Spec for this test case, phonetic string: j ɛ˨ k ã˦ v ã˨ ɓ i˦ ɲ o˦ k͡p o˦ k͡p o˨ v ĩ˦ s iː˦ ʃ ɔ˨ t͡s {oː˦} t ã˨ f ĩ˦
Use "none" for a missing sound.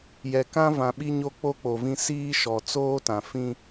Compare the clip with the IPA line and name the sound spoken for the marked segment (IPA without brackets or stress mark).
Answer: oː˦